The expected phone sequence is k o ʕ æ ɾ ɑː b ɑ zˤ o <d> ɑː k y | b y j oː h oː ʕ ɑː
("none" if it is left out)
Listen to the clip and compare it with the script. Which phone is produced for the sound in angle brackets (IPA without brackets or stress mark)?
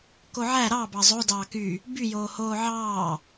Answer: d